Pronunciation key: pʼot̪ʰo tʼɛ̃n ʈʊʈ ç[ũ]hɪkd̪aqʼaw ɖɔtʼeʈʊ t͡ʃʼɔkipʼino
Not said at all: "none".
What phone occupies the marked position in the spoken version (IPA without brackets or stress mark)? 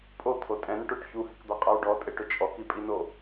u